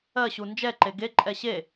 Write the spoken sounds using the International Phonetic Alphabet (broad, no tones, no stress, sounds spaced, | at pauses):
ɜ ɕ u n d͡ʒ ɛ ǃ e ɡ e ǃʼ ɛ ɕ e